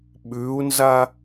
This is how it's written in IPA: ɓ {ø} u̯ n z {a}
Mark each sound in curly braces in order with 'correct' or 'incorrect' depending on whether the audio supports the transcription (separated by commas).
incorrect, correct